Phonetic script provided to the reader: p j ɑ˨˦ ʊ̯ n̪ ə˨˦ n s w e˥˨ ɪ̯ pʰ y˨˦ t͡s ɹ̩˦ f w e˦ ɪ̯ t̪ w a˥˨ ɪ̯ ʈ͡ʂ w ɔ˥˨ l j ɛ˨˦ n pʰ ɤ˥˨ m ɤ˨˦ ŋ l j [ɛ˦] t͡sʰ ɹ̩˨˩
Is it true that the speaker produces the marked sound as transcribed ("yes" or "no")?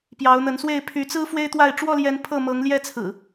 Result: yes